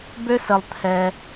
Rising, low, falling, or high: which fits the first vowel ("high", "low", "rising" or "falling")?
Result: high